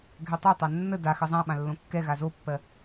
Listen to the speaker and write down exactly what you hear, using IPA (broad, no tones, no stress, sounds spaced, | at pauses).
ɡʱ ɛ tˤ a tˤ a nː ə d a x ɜ zˤ ã ɓ ã lː õ kː ɛ ɣ a z o pː ɜ